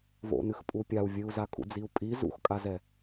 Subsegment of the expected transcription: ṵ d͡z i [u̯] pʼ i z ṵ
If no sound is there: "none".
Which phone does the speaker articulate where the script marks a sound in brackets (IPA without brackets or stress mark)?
u̯